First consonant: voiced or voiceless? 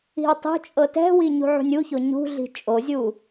voiced